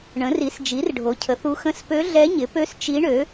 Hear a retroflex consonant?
yes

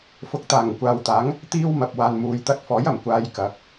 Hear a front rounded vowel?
no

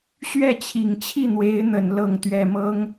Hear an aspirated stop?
yes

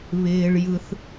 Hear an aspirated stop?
no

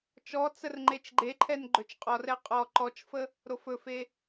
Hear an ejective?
yes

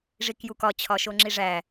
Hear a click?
yes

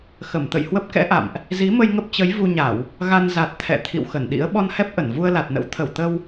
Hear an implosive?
yes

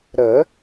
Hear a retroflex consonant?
no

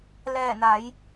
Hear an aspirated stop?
no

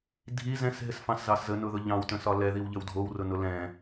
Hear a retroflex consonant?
no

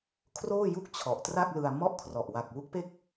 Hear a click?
no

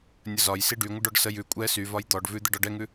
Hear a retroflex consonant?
yes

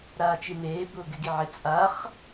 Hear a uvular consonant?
yes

